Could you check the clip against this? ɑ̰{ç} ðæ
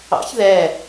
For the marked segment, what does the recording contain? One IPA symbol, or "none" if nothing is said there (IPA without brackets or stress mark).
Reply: ç